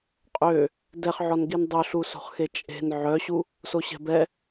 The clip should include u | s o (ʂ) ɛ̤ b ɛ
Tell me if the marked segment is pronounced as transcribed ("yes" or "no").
no